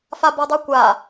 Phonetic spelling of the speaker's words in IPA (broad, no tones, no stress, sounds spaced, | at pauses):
f a b ɔ dˤ u kʷ a